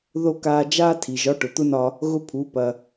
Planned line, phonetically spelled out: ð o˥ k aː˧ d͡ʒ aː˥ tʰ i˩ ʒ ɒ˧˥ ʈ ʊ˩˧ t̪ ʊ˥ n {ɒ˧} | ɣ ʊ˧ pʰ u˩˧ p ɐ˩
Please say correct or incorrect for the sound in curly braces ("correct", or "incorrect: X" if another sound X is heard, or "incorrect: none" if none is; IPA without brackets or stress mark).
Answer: correct